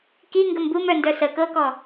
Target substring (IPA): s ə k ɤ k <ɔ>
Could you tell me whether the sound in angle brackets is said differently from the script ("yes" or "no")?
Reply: no